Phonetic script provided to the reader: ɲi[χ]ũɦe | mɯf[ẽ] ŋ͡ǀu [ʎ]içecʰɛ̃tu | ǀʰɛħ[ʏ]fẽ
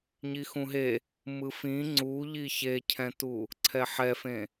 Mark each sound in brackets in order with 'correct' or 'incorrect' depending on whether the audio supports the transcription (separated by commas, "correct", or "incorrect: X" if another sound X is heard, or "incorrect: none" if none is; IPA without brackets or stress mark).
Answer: incorrect: x, incorrect: ĩ, correct, incorrect: ɛ